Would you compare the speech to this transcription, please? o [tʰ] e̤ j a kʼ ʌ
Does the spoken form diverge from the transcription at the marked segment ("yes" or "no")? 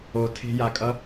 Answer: no